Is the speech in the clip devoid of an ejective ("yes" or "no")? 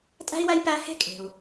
no